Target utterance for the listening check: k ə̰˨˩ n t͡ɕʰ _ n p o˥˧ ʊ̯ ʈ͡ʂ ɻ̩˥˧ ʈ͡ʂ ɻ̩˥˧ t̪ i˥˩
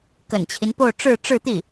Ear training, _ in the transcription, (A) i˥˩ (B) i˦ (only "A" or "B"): B